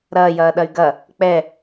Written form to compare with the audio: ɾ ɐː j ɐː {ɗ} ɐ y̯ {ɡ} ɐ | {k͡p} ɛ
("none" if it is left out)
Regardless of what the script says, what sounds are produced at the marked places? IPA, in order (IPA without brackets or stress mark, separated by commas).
ɗ, ɡ, k͡p